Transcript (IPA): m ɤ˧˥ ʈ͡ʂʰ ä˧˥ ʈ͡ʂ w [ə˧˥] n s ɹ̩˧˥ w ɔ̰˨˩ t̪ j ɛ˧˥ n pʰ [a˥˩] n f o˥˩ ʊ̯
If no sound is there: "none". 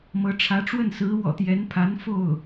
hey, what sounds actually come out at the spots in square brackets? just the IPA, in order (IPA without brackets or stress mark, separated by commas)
ə˥˩, a˧˥